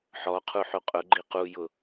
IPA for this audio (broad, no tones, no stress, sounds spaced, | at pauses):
ħ ɔ qʰ u ħ u qʼ ʊ ɡ͡ǃ i q u j ʊ